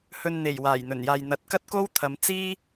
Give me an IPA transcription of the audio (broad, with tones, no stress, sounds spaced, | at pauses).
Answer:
h ɵ˨ n n̪ e˨˩ j w aː˨˩ j n̪ ɵ˨˩ n j aː˨ j n̪ ɐ˨˥ t̚ k ɐ˥ t̚ k o˥ w t̪ʰ ɐ˨˧ m t͡s iː˥